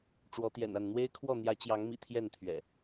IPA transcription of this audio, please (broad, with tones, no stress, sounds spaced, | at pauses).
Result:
ʈ͡ʂ w ɔ˨˦ t̪ j ɛ̰˨˩ n a˥˨ n n̪ w e˦ ɪ̯ kʰ w ɔ˥˨ n̪ j ä˨˦ t͡ɕ j ɑ˨˦ ŋ m ḭ˨˩ t̪ʰ j ɛ˥˨ n t̪ʰ ɥ ɛ̰˨˩